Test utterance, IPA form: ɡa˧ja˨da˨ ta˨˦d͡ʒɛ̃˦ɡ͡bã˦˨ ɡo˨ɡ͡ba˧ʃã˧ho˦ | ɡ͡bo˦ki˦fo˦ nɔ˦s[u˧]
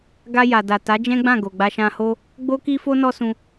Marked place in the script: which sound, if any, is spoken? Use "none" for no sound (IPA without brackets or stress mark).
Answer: ũ˧